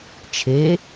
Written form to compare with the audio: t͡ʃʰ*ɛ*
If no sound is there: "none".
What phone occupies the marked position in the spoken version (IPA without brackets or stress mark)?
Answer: e